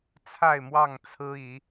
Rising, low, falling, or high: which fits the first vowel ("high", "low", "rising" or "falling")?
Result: falling